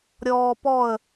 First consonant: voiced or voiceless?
voiced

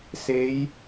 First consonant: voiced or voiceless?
voiceless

